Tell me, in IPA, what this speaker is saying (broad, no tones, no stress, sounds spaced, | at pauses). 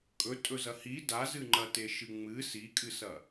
kʼ ɵ tʼ ɵ z ɐ h i d a z ɨ ŋ͡ǃ ɐ t e ʃ ɨ ŋ͡m ɨ s i kʼ ɨ s ɐ